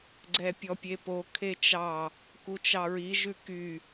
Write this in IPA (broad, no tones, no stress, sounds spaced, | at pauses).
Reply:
ɡ͡ǀ ɛ pʲ ɔ pʲ e p o kʰ e t͡ʃ ɑ | k u t͡ʃ ɑ ɹ i ʒ ʉ k y